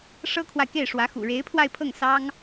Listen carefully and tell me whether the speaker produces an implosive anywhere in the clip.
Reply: no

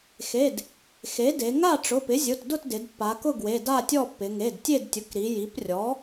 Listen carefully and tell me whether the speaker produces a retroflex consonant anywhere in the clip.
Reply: yes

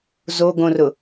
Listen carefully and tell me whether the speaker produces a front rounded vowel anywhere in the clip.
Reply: no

